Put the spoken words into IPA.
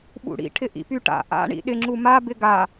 ɓṵɽḭ ʈʰɪʔḭpyʈa̰ ʔa̰ ɳḭɗɪ ŋ͡ǁuma bɪɡa

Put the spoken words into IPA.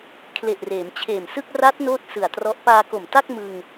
kʰle˨˩ʔreː˩˦mt͡ɕʰeː˨˩msɯ˥˩k̚ ra˦˥t̚ noː˥˩t̚sɯ˨˩a̯trɔ˦˥ʔ paː˧ko˨˩mta˥˩k̚ mɯ˧ŋ

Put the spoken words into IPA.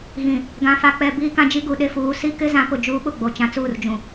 ɣĩ˨ | ɡã˨fa˨k͡pɛ˨ biː˦kã˦ d͡ʒi˦ ɡu˨ɗe˦fuː˨˦ si˦ kɪ˦zã˨˦pʊ˨ d͡ʒuː˦ɓʊ˦˨ɡ͡bo˨ t͡ʃã˨t͡suː˦˨rd͡ʒũ˨

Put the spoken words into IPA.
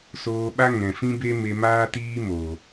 soː˧ɓa˦ ŋɛ̃˨fĩ˦be˦ me˧maː˦tiː˦ moː˨

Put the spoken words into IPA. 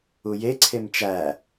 uje ǀʰemt͡ʃæ

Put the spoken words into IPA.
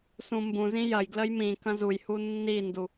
sũmbũzĩ jɐjɡləj mĩ kɐ̃zujhu nːindu

